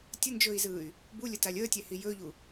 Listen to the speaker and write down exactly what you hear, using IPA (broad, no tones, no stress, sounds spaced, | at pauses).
tʲ ə n d͡ʒ ɵː i̯ z ɯː y̯ | b u lʲ ə t a lʲ əː tʲ ɛ h i j ɵː ʎ u